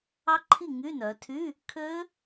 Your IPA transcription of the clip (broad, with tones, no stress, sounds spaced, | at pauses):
ɑ˦˥ ǃʰ i˥˩ ŋ y˧˥˧ n œ˩˧ tʰ y˧˥˧ | kʰ ø˦˥